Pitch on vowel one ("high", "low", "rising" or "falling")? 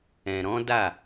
low